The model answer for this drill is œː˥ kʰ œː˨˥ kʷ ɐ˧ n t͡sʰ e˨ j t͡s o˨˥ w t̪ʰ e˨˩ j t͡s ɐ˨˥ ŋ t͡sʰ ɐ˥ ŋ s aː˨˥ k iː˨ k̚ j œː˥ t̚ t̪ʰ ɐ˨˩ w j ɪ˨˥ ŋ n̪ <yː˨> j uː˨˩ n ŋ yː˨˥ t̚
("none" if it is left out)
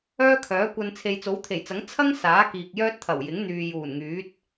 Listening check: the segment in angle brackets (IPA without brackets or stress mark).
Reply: yː˨